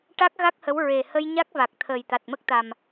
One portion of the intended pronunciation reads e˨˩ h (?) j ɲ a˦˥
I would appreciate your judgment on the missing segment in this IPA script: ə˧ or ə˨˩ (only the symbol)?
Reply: ə˧